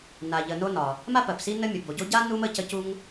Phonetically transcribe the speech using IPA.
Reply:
na˩ʎə˩no˥ nɒ˩ | ma˥ pɜ˩psi˥nə˥ mʲə˩bo˩ɟo˥ ɟa˥ nu˥mə˥ cə˥ cu˥ŋ

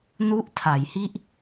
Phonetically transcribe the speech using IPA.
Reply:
nu˥˩ʔ tʰa˩˦jhi˥˩ʔ

